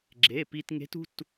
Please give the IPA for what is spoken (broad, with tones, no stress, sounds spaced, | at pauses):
ɡ͡ǁ e˩˧˩ p i˧ t ŋ e̤˧˥ t ṳ˧˥˧ t